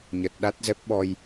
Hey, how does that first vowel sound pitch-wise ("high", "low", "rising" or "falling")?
low